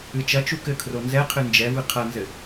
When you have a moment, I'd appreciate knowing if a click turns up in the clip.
no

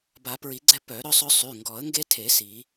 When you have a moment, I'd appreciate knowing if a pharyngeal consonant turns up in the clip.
no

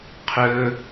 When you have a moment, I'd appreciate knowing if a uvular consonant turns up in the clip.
yes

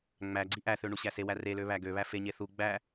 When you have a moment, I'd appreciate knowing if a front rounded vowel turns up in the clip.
yes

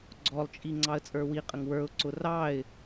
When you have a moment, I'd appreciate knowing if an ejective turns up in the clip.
yes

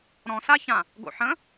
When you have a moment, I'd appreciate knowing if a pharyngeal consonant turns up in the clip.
yes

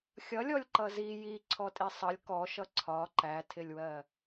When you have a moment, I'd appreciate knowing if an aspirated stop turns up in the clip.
yes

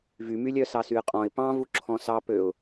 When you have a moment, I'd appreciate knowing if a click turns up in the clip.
yes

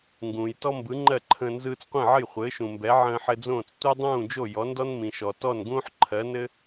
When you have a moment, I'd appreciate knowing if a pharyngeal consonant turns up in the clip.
yes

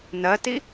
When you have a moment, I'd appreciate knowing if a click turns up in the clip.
no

